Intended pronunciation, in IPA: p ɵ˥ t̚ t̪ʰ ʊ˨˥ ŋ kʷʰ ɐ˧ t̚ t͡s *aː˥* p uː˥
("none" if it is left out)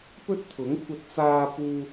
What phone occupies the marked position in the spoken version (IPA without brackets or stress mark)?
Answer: aː˥